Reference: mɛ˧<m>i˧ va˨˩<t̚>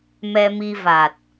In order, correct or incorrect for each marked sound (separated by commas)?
correct, correct